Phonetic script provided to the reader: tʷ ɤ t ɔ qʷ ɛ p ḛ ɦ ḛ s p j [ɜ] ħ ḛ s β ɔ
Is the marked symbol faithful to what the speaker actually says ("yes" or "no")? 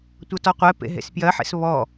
yes